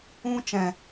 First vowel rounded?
yes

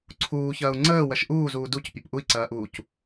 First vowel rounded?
yes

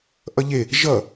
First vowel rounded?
no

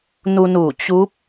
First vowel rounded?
yes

